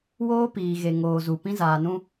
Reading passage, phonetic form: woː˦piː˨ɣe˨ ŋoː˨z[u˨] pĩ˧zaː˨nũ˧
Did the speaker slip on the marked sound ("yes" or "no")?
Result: no